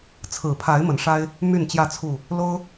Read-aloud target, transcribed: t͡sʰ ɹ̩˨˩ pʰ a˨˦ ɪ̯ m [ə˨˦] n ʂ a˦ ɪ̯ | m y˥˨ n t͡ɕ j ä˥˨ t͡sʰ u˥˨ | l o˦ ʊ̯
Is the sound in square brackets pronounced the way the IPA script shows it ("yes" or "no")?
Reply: yes